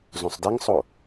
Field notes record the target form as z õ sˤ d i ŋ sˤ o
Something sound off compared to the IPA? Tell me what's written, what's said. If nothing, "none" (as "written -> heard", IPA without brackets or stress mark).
none